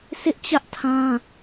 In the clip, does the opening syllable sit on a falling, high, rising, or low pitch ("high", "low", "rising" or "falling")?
high